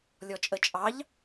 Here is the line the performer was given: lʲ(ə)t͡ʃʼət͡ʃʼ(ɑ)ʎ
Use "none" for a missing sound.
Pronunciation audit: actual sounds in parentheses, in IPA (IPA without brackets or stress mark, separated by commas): ɔ, ɑ